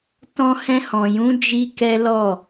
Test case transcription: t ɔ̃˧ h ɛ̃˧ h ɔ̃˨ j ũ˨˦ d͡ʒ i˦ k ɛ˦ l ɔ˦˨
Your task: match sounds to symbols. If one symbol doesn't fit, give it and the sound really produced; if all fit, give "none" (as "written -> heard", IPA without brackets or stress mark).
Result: none